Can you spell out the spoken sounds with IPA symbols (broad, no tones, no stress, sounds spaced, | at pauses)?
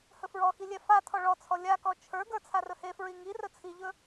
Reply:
h ɵ f ɹ ɔ x i lʲ ɛ f a tʰ ɔ ɭ ɔ t͡sʰ ɔ lʲ a k ɔ t͡ʃʰ ə˞ ɡ ə˞ t͡sʰ a r ɵ h e f ɹ i ŋ i r ɵ t͡sʰ i ʎ ɵ